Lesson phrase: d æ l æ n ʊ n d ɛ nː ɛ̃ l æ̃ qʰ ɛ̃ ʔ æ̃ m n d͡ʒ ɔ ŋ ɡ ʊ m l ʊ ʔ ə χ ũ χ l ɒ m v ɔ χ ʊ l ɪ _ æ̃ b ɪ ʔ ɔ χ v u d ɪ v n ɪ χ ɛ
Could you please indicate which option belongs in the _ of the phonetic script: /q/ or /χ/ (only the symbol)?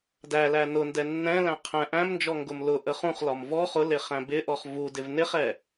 χ